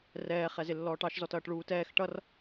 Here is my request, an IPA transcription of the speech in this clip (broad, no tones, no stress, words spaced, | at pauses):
rɛː χɛzɪlːɔːʈɑʃ zɔtʌːʈɭuːtɛːx ʈʌr